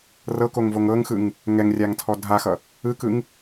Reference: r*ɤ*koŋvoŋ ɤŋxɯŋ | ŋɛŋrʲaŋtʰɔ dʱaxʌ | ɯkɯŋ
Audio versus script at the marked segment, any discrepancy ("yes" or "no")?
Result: no